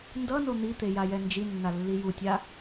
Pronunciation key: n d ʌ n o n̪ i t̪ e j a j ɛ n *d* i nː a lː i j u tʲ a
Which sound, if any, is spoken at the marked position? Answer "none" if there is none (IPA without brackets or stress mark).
d͡ʒ